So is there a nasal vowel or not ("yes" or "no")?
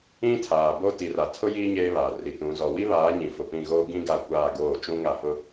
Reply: yes